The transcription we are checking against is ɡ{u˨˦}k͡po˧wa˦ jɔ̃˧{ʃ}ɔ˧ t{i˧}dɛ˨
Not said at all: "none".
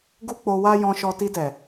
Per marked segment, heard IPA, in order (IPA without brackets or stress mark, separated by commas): u˦, ʃ, i˧